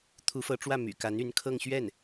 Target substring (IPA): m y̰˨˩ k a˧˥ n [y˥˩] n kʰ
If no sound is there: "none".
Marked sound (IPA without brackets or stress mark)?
y˧˥